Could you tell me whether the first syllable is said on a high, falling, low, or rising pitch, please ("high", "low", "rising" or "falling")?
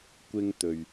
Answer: high